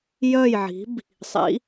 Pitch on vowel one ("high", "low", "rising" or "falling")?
falling